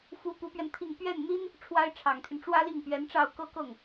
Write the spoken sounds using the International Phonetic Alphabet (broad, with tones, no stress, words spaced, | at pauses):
fu˧˥ pu˧˥pɥɛ˧nt̪ʰi˥˧ŋ pɥɛ˥˩nn̪i˥n | ʈ͡ʂʰwa˥ɪ̯ʈ͡ʂʰɑ˨˩ŋt̪ʰy˦n ʈ͡ʂwä˥li˥˩ŋpɥɛ˧˥nʈ͡ʂɑ˥˧ʊ̯ kɤ˥˧kɤ˥˩ŋ